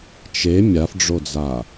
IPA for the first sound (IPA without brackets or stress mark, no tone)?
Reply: t͡ʃ